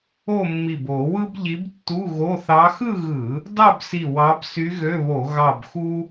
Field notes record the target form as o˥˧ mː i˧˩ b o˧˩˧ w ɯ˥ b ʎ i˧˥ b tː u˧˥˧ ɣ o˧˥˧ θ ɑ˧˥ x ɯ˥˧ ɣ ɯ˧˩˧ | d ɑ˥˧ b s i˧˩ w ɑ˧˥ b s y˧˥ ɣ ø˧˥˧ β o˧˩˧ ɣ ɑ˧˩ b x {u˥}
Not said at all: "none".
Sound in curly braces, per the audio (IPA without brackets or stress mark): u˥